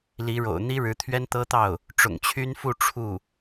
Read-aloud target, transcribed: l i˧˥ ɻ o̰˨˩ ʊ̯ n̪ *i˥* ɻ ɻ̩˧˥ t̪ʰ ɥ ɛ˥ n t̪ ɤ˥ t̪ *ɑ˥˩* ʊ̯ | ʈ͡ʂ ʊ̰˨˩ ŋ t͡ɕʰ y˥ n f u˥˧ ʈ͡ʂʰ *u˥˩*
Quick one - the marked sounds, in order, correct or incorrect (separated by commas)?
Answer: correct, correct, correct